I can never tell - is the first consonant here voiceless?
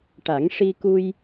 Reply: yes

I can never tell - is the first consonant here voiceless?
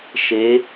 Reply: yes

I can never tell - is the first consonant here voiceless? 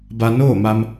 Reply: no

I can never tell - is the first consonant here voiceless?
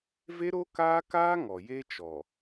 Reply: no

